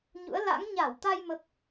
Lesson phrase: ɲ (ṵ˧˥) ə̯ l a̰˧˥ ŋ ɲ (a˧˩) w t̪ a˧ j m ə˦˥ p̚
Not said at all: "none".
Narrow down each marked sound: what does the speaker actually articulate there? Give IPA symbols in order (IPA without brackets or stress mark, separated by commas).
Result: ṵ˧˥, a˧˩